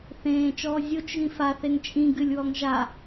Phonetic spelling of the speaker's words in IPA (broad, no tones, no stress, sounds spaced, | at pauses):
θ ẽː t͡ʃ ɔː zʲ o t͡ʃ ɣ ĩ f a θ e ŋ t͡ʃʼ ĩ ɡ ɨ lʲ w ɔ ŋ ʒ a